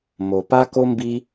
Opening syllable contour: low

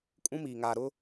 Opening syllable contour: high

